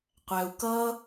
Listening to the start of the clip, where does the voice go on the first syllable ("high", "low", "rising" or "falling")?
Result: low